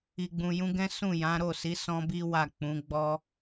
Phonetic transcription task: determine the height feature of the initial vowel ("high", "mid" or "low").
high